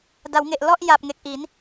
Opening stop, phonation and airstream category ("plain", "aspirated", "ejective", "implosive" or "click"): plain